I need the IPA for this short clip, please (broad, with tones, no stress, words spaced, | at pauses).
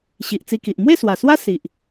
ɕi˨ʔt͡si˧ki˨ʔ mwe˥˧swa˨˩swa˦ si˨ʔ